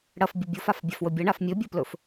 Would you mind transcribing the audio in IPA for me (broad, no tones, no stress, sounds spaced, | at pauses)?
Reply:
ɽ ɐ f bʲ ɵ bʲ o f a f bʲ a f w ɵ bʲ ɐ ɳ a f mʲ ɵ bʲ o p l ɵ f